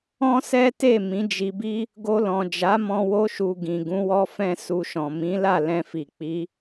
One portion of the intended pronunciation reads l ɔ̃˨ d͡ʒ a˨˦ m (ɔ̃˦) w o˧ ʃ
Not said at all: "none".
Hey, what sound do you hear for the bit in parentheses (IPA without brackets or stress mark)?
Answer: ɔ̃˧